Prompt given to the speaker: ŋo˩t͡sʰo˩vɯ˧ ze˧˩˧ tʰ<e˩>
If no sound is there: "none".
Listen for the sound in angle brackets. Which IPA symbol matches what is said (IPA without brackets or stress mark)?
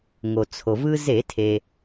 e˩